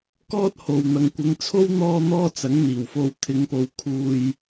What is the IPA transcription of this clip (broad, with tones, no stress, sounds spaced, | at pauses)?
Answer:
k ɔː˥ t̚ h o˨ w n̪ ɐ˨˧ ŋ kʷ ɪ˨˧ ŋ t͡sʰ o˥ w n̪ ɔː˧ n̪ ɔː˥ t͡s ɐ˨˥ ŋ n̪ iː˨˩ w f o˧ w t̪ʰ ɪ˨˧ ŋ p o˨ w kʰ uː˧ j